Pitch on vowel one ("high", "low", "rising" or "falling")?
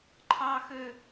high